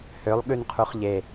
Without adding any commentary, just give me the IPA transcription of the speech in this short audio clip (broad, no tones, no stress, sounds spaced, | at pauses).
h ø lˠ ɠ ʉ n qʰ u χ ʎ e